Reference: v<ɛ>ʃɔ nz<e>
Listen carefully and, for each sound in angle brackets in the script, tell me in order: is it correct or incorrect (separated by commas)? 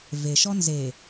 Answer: incorrect, correct